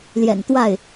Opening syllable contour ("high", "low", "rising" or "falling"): low